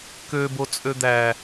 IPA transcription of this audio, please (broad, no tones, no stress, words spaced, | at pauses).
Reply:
købo t͡sʼød̪æ